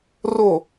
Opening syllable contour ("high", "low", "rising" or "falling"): low